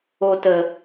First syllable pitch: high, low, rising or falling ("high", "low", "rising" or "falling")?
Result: low